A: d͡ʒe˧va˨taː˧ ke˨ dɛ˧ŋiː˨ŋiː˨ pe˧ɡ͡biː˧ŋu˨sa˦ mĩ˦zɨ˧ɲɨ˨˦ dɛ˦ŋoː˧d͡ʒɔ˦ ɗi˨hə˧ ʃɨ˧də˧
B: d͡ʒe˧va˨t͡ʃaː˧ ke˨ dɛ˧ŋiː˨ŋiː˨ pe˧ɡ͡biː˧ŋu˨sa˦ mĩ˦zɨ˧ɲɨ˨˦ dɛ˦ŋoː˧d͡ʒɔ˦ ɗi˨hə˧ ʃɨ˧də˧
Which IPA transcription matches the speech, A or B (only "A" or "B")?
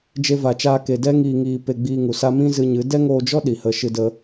B